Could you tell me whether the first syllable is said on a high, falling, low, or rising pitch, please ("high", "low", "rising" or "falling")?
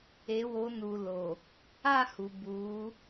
rising